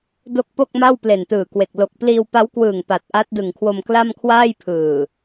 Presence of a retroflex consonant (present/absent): absent